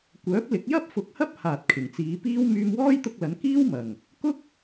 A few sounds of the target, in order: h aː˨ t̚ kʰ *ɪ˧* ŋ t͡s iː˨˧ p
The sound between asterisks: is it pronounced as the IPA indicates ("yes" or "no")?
no